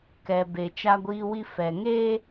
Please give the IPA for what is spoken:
k ɛ˨ b e˨ t͡ʃ a˦ ɡʷ iː˦ w i˦ f ɛ˨ ŋ eː˦

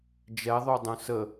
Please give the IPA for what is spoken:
d͡ʒ ɛ ðˤ o dˤ ũ s ə

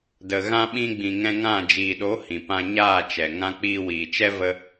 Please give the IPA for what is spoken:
d ə˨ ɣ ã˧ ɓ ĩ˧ ɡ͡b ĩ˨ ŋ ɛ̃˧ ŋ ã˦˨ d͡ʒ iː˨ ɗ o˨˦ h ĩ˨ p ã˧ ɲ aː˦˨ t͡ʃ ɛ˨ ŋ ã˧ k͡p iː˧ w iː˨ t͡ʃ ɛ˦ v ə˦

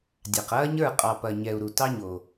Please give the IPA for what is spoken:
dʲ ɑ˨ q ɐː˦ ɲ ə˞˦˨ qʼ ɑ˨ p ɐ˨ ɲ ɛ˨ u̯ ɾ u˨ t ɑ˦ ɲ o˨

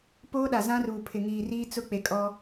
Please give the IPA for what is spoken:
p oː˦ ɗ a˨ z ã˦ r uː˨ pʰ ɪ˨ ŋ iː˨ r iː˦ t͡s ʊ˦ k͡p e˨ kʼ ɔ˦

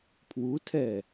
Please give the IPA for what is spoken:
pʰ w u tʰ ɛ

